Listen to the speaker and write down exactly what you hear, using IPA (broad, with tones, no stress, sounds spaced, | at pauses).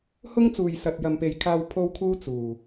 h ʊ˥ ŋ t͡s uː˨ j s ɐ˨ t̚ j ɐ˨ m p e˨ j kʰ aː˧ w pʰ o˥ w kʰ uː˥ t͡s uː˨˩